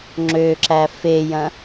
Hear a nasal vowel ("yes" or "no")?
yes